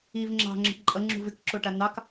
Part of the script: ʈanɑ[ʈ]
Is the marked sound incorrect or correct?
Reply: incorrect: k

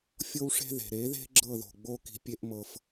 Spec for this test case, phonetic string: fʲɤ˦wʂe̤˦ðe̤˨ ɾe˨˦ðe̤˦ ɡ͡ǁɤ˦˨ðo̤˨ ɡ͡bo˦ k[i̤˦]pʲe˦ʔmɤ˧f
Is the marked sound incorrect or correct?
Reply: incorrect: i̤˧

